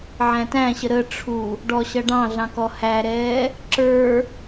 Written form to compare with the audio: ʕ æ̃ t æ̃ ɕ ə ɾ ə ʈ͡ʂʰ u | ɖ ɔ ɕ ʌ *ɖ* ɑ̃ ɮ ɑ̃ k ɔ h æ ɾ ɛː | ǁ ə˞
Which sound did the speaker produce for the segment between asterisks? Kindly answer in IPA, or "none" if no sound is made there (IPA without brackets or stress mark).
ɖ